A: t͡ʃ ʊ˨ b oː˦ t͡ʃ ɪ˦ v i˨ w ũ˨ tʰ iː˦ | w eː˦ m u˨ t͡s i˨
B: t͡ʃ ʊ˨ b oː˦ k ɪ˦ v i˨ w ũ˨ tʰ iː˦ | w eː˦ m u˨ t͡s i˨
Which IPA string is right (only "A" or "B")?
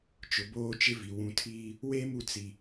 A